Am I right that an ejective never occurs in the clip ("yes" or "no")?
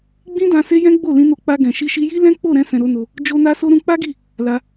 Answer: yes